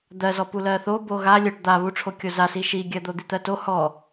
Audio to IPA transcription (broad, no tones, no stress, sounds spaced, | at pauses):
d̪ ɜ z ɔ p u l ɜ θ o b o ɣ a lʲ o ʈ d̪ a β u ʈ͡ʂʰ o kʲ o z a s i ʃ i ɡʲ ɜ d̪ o d̪ i t̪ ɜ t o h ɔ